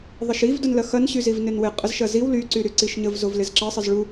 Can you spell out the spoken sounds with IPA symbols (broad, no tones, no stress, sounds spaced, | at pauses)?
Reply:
ðˤ ə ʃ i v d ʊ n l ɐ x ɐ n ɕ y z i v n ɪ n w ɪ qʼ ə z ʃ ɐ z i w l y ǀ y ɾ y ǀ i ʃ ɲ ə v z o v l ɪ z ǁ ɐ sˤ ɪ z ɭ u